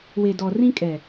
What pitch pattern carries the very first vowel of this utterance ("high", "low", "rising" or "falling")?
low